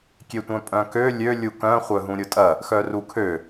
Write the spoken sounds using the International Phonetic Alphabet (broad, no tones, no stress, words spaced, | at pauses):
kʲetʷœ̃pʼœ̃kø lʲø lʲukœ̃ χʷœɦũɾʲʊtʼɐ | xœrukʰø